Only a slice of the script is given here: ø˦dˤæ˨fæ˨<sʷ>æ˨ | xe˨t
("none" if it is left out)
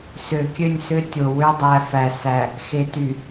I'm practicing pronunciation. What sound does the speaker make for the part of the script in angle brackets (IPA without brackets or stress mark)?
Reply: s